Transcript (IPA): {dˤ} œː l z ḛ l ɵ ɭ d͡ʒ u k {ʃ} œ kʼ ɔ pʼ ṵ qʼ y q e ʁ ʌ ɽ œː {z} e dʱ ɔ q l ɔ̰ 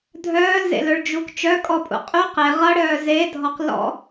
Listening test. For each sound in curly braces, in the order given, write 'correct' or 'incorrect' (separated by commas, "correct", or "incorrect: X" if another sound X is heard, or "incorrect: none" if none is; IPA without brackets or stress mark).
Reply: incorrect: dʱ, incorrect: t͡ʃ, correct